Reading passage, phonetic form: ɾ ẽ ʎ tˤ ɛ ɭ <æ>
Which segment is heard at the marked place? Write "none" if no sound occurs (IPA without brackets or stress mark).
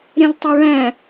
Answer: æ̃